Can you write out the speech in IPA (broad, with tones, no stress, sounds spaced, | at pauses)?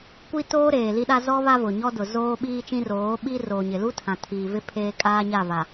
kʷ i˦ t oː˦ ɾ eː˨ l i˦ ɗ a˦ z ɔ˦ β a˦ v ʊ˨ ɲ ɔ˦ d ʊ˨ z oː˦ ɓ iː˦ t͡ʃ ĩ˦ r oː˨˦ ɓ i˦ r oː˨ ɲ ɪ˨ l u˦ tʰ ã˨ tʰ iː˨ v ɪ˦ pʰ eː˦ kʼ aː˦ ɲ a˦˨ v a˨